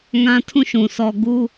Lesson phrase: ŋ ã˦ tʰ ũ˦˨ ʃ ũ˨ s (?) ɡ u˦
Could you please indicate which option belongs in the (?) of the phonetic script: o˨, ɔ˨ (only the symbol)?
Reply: ɔ˨